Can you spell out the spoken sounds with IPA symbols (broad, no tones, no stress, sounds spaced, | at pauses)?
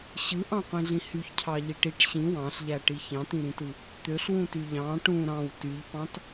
ɕ ɯ ʔ ɑ̃ qʷ ĩ ɮ ĩ h y ç cʰ ɑ ʎ i ʈ i ʈ ɕ ĩ w ɑ̃ ɬ ʎ æ ʈ i ç ɑ̃ t ĩ ɾ ĩ t ɯ | t̪ ø ɬ w ũ t y ʎ ɑ̃ ʈ ũ ɾ ɑ̃ w t y ʎ p ɑ̃ t